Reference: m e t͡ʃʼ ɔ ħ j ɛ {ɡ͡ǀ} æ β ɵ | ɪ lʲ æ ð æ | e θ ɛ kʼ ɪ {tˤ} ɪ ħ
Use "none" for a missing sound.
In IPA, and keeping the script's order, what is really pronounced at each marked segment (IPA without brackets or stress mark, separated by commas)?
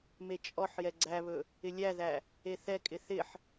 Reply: ɡ͡ǀ, θ